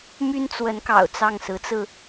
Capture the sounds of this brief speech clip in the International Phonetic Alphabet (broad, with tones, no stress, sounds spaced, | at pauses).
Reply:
m y˥ n t͡s w ə˧˥ n k ɑ̰˨˩ ʊ̯ t͡s ɑ˥˩ ŋ s ɹ̩˧˥ t͡s ɹ̩˧